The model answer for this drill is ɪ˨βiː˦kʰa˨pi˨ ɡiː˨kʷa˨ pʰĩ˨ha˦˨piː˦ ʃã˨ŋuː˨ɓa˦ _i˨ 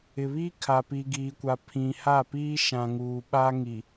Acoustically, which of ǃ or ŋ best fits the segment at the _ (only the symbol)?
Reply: ŋ